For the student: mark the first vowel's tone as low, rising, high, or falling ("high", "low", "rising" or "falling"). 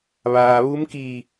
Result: low